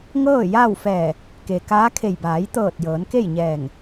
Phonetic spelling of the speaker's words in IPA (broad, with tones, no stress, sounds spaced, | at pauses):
ŋ ɤː˥˨ j aː˥˨ w f ɛː˧˩ | k e˩ k aː˧˥ kʰ e˧˩ j b aː˩˧ j t̪ ɤː˧˩ t̚ j ɤː˩˧ n k e˥˨ j ɲ ɛː˧˩ ŋ